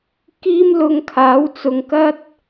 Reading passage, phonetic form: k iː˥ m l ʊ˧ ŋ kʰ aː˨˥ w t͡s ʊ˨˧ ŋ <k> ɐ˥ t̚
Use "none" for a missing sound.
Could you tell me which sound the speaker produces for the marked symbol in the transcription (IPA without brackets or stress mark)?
k